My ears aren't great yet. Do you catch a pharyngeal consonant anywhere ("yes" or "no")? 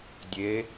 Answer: no